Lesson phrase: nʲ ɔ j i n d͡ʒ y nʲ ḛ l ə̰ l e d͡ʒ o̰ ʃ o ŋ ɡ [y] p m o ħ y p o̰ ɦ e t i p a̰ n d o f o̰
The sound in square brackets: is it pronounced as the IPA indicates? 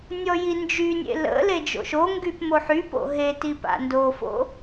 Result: yes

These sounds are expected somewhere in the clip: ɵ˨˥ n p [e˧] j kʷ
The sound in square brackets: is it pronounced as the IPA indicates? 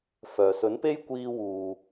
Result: no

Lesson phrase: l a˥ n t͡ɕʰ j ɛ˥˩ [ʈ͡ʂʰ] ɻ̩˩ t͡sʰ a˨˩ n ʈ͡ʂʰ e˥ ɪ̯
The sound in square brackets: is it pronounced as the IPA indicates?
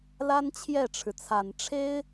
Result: yes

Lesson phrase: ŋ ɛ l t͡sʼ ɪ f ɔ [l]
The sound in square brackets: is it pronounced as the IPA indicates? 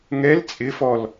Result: yes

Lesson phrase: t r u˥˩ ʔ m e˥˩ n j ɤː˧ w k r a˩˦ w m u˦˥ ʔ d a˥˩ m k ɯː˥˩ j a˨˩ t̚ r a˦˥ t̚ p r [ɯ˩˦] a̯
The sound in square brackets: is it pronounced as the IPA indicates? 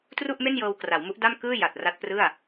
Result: no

